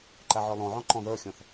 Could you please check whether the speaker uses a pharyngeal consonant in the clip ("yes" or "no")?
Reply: yes